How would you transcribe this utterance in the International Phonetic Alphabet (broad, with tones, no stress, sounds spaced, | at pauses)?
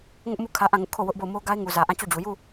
ŋ ʊ˦ ʔ m u˦˨ kʰ ä˦ ʔ ã˦˨ ŋ ʊ˦ ʔ kʰ o˦˨ w ʊ˦ ʔ b o˦˨ ʊ̯ m o˦ ɡ a˦ ɪ̯ ŋ u˨ z ä˨ ʔ ã˦˨ t͡ɕ o˦˨ d͡ʑ u˨ j u˦˨